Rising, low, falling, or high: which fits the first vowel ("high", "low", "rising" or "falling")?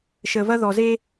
low